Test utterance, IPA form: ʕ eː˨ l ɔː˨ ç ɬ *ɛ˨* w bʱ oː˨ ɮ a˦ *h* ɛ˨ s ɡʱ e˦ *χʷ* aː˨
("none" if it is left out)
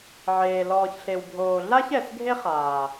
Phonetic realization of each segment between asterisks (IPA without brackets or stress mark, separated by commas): e˨, ç, χ